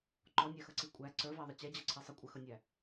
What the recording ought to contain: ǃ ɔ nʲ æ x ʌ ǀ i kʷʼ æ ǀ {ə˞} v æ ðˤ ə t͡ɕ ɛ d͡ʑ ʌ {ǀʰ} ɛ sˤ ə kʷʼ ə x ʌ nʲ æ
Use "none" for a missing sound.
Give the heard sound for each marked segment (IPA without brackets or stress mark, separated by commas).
ə˞, ǀʰ